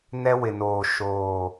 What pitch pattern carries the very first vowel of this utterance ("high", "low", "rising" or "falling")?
high